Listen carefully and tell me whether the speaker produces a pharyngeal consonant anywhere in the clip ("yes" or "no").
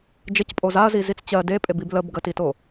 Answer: no